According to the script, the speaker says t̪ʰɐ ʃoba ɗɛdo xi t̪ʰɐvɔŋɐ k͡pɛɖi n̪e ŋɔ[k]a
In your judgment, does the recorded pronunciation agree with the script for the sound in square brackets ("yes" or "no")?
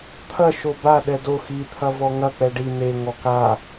yes